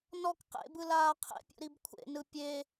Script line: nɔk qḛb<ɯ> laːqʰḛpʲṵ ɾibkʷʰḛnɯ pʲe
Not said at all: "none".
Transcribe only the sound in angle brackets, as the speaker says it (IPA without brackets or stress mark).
ɯ